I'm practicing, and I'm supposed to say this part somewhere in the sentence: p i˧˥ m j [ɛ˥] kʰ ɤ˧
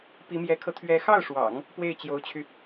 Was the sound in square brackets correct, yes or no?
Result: no